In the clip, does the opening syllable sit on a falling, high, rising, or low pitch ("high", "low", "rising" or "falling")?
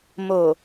low